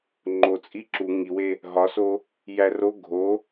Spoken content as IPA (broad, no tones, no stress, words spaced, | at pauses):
ŋ͡ǃo t͡sʼiǁu ŋiwe | ɦɒso | jæro ɡʱo